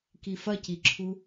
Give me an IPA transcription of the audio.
k i f ɐ c i ǁʰ u

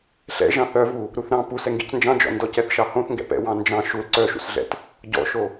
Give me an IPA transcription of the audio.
ɬ ɛ̰ ʒ ɑ̃ θ œ v u | ɾ u θ ɾ ɑ̃ p u s ɛ ŋ ɡ ḭ c n d͡ʒ ɑ̃ d͡ʒ ɔ̰ n d ɔ c ɛ θ ʃ ɑ h õ θ ŋ ɡ ɛ̰ p ɛ̰ w ɑ̃ n d͡ʒ ɑ̃ ʃ u l ǀ œ ʃ ṵ s ɮ ɛ̰ t | ɟ ɔ̰ ʃ o

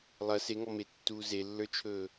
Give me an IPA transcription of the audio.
lˠ ɐ s e ŋ ɔ m e tː uː z e lː ə˞ t͡ʃʰ ɵː

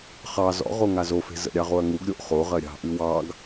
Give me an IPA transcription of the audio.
χ ɑ z ɔ̰ ʁ o ŋ a z o f e̤ z ə̰ ɾʲ ɑ ʁ o ɐ̯ ŋ u ɡ ɾʲ o ʔ χ o ʁ ɜ ɾʲ ɑ̤ ʔ ʉ w ɑ ɡ

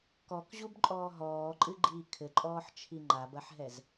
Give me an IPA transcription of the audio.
k ɔ k ʑ u b ǃʼ ɔː ɦ ɔː ǃʼ ɨ ɡ͡ǃ iː kʰ ɘ ǃʼ ɔː ħ t͡ʃʰ i ŋ͡ǃ a b ɐ ħ ɦ ɛ z

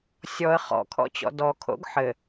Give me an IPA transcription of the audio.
sʲ ɔ ə̯ χ ɔ̰ kʰ ɔ̰ t͡ɕ ɔ̰ d ɔ kʰ o̰ ɡ ħ ɘ

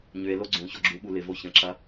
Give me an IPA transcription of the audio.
ɲ ʏ e̯ l o ɡ͡ǀ ũ ç ɔ ɡ͡ǁ u ɓ u l ɪ v o ç ə̃ ǁ ɐ

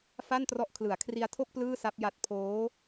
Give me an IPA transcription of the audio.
f a˥˩ n t r ɔ˦˥ ʔ kʰ l ɯ˩˦ a̯ kʰ r i˧ a̯ tʰ o˥˩ k̚ p l ɯː˥˩ s a˦˥ p̚ j a˦˥ t̚ pʰ oː˦˥

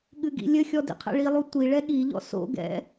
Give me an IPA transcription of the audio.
ɠ ɨ ɡ ḭ lʲ ɘ xʲ ɔ d ḭ qʰ ɛ̰ ɭ i lˠ u tʷ i ɭ ɛ ɠ i ʎ ɔ̰ s o̰ ɡ ɛ̰

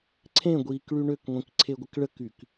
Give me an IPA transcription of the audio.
ǀʰ ẽ ɡʷ iː k ɭ y ɳ ø k ŋʷ ĩ k ǀʰ e ɡʷ ə k ɭ ə k y k

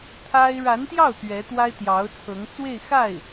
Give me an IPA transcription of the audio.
t̪ʰ a˥ ɪ̯ ɻ a˧˥ n t̪ j ɑ˥˩ ʊ̯ t̪ ɥ ɛ˧˥ t̪ w a˥ ɪ̯ t̪ j ɑ˧˥ ʊ̯ t͡sʰ ɤ˧˥ ŋ t͡s w e˥˧ ɪ̯ x a˥˩ ɪ̯

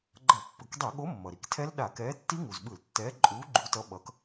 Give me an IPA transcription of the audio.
ɡ͡ǃ ʌ˧˩˧ pː ɯ˩ k dˤ ɛ˧˩˧ ɠ o˨˥ mː ʌ˩ ɾ i˩ k tʰ ɛ˦˥ l ɗ a˧˩˧ k ɛː˨˥ tː i˦˥ ŋ u˩ z ɓ ɯ˧˩˧ l tː ɛː˨˥ ǃʼ uː˨˥ ɡ͡ǃ u˨˥ t ʌ˨˥ ɓ ʌ˨˥ k

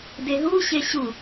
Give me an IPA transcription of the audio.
d e ɦ u ɕ e ɕ u

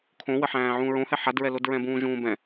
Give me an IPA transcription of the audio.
kʰ õ w ə ħ æ̃ː ʕ ũː ɹ õ h ɛ ħ a d ɹ ɛ l o d ɹ ɛ̃ b ũː ʒ ũː b ɛ̃

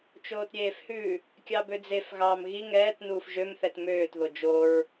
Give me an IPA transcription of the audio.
t͡ʃ oː t ɾʲ eː f h ʉ | kʲ ɑ b ø d͡z e f ɣ ɑː m ɣ i ŋ ɛː t n uː f ʒ ø m θ ɛ t m øː t ð o d͡ʒ o ɹ

